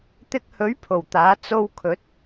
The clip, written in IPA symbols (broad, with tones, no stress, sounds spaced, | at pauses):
t̪ ɪ˧ k̚ h ɵ˨˥ ɥ pʰ o˨˩ w t̪ aː˨˥ t͡s o˧ w kʰ ɵ˨˥ t̚